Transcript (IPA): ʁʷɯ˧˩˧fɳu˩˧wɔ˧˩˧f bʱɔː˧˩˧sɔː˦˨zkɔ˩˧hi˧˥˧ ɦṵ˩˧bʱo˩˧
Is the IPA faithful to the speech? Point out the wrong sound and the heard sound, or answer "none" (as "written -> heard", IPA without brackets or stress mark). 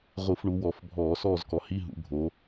none